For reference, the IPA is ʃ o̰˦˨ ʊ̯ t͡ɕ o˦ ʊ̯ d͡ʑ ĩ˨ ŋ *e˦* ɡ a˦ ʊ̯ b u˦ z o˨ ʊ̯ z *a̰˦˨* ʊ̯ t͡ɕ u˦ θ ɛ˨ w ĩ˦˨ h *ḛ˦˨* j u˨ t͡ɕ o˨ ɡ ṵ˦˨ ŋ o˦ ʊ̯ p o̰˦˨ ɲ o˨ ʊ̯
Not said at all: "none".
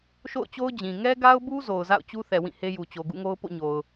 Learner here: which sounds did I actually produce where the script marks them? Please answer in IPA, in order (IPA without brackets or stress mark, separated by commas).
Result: ɛ˦, a̰˦˨, e˦